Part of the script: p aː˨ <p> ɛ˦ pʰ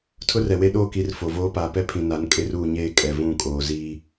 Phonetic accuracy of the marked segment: correct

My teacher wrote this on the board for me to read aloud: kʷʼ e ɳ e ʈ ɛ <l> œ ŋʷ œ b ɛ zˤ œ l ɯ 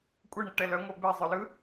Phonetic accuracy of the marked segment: correct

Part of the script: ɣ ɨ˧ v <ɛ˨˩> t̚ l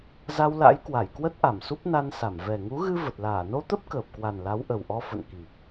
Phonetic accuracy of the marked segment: incorrect: ə˨˩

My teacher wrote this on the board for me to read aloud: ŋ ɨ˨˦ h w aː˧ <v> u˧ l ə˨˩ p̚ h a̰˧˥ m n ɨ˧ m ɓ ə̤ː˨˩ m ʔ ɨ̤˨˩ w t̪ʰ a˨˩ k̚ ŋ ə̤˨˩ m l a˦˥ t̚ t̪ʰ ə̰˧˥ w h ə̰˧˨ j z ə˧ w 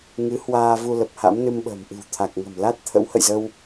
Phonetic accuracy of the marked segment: correct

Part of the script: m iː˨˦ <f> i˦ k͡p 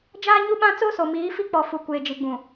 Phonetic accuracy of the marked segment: correct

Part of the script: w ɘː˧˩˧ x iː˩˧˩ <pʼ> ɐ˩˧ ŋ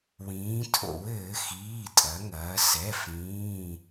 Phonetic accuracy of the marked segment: incorrect: tʼ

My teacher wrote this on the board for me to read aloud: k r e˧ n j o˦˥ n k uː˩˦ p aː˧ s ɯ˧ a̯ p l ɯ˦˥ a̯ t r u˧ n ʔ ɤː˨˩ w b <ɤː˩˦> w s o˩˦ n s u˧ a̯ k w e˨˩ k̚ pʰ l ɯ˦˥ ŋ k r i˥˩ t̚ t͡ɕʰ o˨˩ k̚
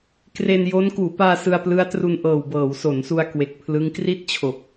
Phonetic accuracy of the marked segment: correct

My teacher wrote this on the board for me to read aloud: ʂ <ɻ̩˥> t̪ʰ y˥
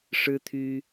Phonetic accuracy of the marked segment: correct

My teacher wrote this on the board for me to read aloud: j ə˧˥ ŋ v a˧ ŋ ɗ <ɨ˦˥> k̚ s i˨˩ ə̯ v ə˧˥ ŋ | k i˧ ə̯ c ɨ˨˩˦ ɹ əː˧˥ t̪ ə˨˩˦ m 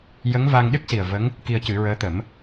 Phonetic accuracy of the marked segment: correct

